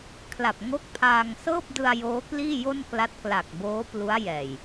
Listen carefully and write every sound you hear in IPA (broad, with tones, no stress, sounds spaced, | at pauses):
kʰ l a˨˩ p̚ ŋ o˦˥ k̚ pʰ aː˧ ŋ s ɤː˥˩ p̚ d ɯ˧ a̯ j oː˦˥ k l iː˥˩ j o˥˩ n k l a˦˥ t̚ k l a˨˩ k̚ b oː˦˥ p l u˦˥ a̯ j ɛː˨˩ j